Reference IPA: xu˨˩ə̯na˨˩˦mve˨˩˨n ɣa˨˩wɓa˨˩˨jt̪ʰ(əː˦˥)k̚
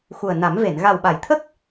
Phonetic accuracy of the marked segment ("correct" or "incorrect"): incorrect